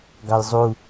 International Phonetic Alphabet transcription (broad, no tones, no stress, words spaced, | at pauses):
ɡɑjzˤu